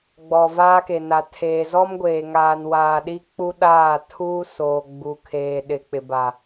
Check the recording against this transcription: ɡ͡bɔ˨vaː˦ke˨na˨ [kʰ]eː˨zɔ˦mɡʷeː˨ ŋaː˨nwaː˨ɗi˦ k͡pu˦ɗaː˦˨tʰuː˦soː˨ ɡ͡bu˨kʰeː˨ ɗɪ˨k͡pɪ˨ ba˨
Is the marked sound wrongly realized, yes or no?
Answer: yes